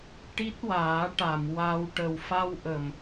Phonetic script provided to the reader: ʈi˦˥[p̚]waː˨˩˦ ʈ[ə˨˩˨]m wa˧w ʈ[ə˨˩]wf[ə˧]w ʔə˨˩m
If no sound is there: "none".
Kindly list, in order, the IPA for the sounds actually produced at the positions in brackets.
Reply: t̚, a˨˩˨, ə˨˩, a˧

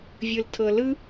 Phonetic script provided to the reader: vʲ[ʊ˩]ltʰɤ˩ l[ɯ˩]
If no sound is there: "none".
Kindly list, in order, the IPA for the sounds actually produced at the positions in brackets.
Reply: ɯ˩, ɯ˥

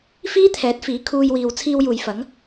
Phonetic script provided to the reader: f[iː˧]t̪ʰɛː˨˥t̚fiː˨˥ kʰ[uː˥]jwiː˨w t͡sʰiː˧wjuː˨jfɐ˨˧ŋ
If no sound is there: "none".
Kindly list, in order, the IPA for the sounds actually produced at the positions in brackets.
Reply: iː˥, uː˧

